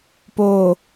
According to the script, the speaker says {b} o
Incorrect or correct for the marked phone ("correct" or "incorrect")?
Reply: incorrect